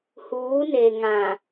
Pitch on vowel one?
rising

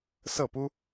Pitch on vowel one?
falling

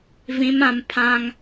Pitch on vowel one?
high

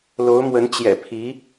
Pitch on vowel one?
rising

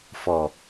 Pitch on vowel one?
low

